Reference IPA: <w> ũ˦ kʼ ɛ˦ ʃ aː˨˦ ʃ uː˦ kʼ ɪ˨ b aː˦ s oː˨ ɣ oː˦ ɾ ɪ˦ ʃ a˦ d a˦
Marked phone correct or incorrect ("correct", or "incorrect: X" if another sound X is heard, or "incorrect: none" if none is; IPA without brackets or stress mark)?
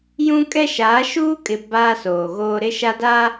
incorrect: j